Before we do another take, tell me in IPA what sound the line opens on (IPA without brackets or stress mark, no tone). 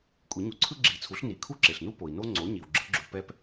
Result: kʷʼ